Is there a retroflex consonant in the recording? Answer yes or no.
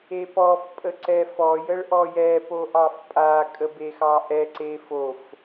yes